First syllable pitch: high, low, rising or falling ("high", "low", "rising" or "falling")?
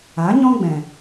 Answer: rising